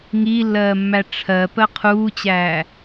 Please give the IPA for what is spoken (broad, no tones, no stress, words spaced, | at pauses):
ŋiːlːɜːmːæ ʈ͡ʂʰɜ pɜqʰuːt͡ɕæː